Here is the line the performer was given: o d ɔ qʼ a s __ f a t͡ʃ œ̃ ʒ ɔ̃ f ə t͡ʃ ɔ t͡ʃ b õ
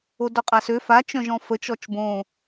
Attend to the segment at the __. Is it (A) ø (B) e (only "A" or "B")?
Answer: A